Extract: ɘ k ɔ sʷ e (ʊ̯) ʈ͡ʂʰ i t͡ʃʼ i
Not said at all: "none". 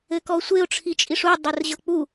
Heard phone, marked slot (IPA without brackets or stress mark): ʊ̯